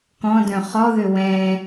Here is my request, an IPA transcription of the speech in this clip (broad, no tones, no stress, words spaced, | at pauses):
kɔ̃dœ̃ χɔðø wɛ̃